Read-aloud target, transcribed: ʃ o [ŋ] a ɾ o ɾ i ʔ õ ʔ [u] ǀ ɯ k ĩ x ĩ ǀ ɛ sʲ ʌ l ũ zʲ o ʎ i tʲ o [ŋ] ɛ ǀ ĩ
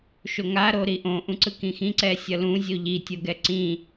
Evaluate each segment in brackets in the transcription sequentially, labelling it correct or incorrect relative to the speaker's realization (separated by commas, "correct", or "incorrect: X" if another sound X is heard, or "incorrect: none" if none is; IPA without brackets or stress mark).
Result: correct, incorrect: ũ, incorrect: ɡ